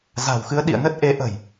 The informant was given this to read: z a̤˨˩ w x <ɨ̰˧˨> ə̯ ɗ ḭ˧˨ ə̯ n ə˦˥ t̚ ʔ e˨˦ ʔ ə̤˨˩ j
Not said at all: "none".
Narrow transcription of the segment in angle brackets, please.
ɨ˨˦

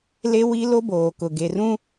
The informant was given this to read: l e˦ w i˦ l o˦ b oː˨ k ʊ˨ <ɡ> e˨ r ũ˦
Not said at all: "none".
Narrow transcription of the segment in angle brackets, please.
ɡ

